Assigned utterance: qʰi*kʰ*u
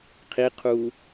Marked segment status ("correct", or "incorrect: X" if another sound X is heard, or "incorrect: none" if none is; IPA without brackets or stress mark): incorrect: qʰ